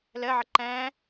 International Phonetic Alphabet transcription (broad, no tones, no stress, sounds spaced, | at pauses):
l ɜ ʕ ʌ ǃ æ̃